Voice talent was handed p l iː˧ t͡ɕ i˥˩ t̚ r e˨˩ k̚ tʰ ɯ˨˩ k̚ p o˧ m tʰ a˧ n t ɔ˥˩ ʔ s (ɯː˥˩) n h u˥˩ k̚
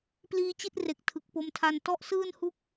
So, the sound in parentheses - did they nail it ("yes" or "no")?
yes